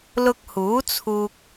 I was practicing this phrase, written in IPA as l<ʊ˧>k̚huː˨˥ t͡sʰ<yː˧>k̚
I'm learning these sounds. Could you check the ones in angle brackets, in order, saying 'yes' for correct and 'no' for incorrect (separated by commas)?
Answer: yes, no